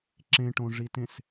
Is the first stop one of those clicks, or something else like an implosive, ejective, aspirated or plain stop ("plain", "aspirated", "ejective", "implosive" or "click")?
click